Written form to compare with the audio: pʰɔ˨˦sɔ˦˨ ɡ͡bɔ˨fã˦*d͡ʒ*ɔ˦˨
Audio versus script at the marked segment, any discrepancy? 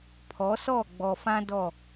yes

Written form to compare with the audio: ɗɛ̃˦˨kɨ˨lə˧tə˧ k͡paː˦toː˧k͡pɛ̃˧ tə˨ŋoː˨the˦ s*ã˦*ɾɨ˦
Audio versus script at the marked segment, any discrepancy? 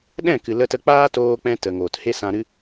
yes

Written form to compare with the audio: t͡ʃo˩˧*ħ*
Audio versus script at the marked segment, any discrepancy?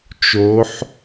no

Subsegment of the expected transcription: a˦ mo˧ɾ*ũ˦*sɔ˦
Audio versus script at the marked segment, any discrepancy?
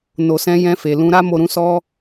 no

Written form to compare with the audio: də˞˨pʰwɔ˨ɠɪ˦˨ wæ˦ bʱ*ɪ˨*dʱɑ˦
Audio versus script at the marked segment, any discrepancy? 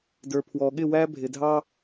no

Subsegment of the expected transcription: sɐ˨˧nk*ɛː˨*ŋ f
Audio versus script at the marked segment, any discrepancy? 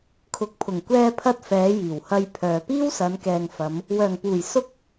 no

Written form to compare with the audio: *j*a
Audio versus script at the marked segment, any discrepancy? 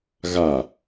yes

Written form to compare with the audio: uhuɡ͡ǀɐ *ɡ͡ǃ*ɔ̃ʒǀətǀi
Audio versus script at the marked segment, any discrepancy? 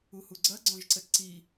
yes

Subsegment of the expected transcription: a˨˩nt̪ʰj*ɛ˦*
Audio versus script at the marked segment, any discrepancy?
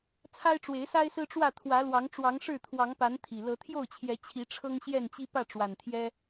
no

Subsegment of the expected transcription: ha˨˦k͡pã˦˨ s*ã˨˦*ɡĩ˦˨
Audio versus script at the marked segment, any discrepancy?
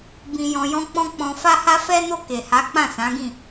no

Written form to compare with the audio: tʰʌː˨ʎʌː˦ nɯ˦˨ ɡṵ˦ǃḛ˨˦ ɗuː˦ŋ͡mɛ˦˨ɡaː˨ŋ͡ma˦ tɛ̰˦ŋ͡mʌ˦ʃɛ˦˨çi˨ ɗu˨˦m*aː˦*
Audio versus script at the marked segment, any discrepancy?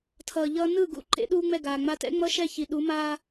no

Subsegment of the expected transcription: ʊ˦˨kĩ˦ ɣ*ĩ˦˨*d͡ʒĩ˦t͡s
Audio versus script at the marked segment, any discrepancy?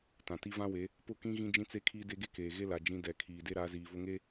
yes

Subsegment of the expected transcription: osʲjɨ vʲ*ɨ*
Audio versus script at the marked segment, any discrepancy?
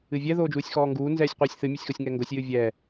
yes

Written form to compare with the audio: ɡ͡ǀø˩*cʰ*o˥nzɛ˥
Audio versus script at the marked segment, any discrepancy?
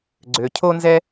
no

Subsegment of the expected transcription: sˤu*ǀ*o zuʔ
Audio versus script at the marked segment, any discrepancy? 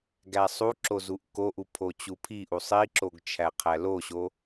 yes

